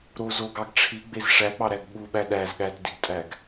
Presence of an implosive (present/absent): present